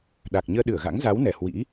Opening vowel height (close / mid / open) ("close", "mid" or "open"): open